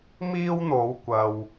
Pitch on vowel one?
high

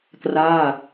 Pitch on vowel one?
falling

